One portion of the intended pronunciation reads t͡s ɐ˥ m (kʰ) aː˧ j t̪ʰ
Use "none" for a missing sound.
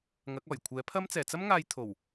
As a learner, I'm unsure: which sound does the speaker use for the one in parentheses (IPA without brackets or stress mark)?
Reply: ŋ